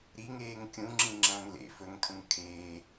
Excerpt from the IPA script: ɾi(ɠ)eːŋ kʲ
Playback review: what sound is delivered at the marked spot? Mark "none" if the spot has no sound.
ŋ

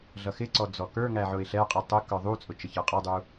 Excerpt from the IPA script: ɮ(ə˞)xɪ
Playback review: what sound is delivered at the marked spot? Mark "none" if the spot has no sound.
ʌ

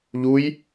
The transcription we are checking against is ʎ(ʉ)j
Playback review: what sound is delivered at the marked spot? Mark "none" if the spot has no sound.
u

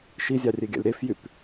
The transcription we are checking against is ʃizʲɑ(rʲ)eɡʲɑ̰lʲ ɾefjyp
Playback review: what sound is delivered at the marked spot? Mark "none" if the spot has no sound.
rʲ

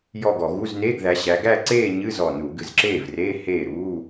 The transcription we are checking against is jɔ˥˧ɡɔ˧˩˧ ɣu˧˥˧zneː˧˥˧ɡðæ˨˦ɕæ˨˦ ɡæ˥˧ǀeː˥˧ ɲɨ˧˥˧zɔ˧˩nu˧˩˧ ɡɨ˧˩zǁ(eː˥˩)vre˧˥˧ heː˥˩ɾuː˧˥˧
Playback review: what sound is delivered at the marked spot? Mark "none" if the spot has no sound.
eː˥˩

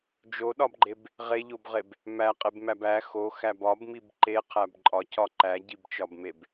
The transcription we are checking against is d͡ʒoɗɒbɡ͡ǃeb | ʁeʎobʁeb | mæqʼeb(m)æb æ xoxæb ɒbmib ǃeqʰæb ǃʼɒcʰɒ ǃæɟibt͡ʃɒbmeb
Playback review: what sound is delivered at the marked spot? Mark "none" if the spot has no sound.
m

